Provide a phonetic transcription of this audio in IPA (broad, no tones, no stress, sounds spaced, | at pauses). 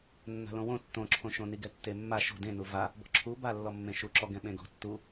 nː a̤ l õ w õ tː õ ǁʰ õ ʃ õ n i ɡ ɛ tː e mː a ʃ o̤ d ẽ n u v a | b ɔ̤ ǁʰ u b a lː ɔ mː ẽ ʃ u ǁ ɔ ɡ ɛ̃ ɓ ẽ ɡ ɔ̤ tː u